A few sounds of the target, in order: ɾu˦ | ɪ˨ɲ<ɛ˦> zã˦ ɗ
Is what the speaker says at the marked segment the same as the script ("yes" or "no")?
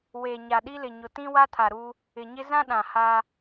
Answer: no